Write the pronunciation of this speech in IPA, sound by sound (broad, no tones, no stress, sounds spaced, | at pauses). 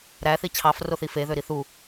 ɾ æ θ i t͡ɕʰ ɑ f r o θ i f e ð ø ɾ i θ u